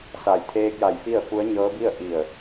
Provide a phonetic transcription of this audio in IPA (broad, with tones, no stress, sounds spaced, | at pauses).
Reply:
s a˧˩ j t̪ʰ eː˧ k̚ j a˧˩ j f i˥˨ ə̯ f u˧˥ ə̯ ɲ ɤː˧˥ b i˥˨ ə̯ ʔ i˧˩ ə̯